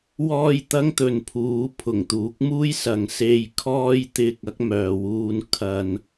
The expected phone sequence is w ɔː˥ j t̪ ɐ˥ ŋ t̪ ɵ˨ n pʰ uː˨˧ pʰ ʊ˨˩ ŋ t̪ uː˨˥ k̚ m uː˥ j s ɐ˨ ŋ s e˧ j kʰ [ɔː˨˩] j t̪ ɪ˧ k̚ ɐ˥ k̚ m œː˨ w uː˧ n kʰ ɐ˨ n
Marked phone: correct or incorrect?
incorrect